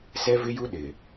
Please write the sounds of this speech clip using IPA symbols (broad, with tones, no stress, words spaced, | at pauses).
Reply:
sɛ˦vɪ˦ ju˦ ɗɪ˨